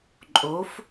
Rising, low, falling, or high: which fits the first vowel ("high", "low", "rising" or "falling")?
rising